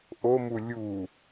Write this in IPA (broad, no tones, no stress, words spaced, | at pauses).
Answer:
ʔomu lʲu